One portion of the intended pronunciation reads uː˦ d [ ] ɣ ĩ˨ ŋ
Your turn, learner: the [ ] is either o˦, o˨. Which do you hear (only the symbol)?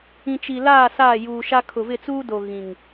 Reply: o˨